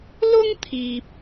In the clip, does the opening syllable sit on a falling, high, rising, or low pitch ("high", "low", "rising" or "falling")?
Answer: high